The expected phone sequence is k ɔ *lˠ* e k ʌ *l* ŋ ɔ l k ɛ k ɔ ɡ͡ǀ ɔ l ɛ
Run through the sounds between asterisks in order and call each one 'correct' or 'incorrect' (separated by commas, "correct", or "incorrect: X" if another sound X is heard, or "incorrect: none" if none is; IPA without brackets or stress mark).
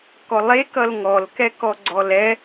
correct, correct